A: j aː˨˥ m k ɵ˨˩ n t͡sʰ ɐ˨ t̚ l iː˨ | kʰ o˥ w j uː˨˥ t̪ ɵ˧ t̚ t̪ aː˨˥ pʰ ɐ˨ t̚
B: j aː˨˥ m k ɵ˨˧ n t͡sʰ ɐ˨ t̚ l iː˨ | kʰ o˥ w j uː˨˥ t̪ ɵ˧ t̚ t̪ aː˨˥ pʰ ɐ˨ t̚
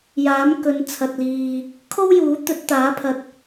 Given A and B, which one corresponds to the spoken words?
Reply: B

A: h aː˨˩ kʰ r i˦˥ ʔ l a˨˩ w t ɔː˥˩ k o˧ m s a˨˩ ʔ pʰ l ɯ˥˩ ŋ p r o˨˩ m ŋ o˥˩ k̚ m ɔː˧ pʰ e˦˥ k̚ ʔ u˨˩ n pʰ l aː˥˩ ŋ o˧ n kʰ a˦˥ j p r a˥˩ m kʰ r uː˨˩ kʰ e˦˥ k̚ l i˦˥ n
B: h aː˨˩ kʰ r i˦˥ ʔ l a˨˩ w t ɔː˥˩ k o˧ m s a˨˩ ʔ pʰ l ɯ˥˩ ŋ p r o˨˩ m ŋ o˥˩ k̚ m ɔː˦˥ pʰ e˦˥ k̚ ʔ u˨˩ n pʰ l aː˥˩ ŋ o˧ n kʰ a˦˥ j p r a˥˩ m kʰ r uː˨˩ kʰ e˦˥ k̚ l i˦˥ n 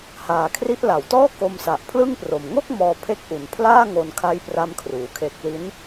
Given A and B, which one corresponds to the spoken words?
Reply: A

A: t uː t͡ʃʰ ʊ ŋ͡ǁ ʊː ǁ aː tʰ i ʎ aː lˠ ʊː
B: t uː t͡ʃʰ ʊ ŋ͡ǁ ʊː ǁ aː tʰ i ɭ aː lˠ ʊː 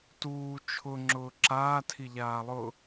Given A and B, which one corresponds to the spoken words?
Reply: A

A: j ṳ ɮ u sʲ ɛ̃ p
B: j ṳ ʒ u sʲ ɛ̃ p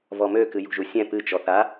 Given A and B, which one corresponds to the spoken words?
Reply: B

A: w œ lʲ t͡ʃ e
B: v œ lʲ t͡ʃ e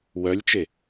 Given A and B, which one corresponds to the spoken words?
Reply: A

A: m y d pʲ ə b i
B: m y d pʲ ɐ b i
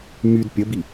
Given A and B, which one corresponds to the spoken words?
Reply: A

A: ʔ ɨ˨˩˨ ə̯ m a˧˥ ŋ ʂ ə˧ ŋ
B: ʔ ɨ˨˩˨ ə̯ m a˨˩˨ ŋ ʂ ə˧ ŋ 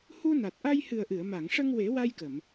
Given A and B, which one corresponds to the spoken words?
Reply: B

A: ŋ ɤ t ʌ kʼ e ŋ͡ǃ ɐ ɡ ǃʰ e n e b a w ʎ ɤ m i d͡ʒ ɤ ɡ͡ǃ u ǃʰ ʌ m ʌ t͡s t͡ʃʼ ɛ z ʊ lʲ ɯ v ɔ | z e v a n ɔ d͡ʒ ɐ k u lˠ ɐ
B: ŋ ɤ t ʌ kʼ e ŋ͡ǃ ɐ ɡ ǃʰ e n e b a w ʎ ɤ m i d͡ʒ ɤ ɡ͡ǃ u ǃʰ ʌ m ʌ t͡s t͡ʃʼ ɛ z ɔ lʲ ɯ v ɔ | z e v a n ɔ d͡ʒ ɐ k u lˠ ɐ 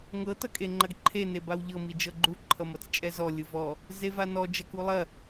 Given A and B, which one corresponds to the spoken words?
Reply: B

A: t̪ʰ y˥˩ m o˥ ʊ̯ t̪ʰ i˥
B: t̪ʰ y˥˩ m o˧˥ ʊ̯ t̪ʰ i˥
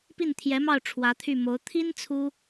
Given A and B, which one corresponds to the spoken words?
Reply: B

